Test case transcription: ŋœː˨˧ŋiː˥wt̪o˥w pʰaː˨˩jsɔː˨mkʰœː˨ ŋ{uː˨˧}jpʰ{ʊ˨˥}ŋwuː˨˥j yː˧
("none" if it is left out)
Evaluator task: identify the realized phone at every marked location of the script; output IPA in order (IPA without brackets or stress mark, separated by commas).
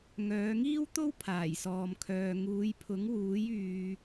uː˨˧, ʊ˨˥